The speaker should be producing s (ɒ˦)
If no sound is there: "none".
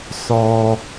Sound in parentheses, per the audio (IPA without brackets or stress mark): ɒ˦